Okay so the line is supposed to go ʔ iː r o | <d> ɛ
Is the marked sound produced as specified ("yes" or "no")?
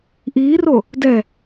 yes